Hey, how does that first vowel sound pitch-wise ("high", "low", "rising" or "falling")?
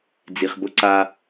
low